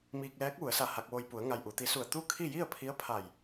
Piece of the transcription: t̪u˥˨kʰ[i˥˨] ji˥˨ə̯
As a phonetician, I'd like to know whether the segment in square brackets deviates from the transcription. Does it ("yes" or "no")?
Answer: no